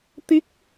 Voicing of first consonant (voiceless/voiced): voiceless